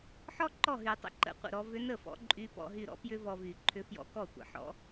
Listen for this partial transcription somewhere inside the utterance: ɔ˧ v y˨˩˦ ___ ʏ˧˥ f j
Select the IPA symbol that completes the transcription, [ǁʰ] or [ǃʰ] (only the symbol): ǃʰ